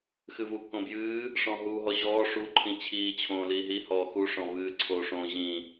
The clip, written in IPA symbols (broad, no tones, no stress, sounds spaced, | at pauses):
x ɨ v u k õ b j ɨː | ʂ ɔ̃ ɦ uː ɦ ɔ ʑ ɔː ʂ u ǃʰ ĩ t͡ɕʰ iː t͡ɕʰ õː l iː ɦ i h ɔː x u ʂ ɔ̃ v ɨː ǀʰ o ʂ õ ʑ ĩ